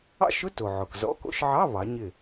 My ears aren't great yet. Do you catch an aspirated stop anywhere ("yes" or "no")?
no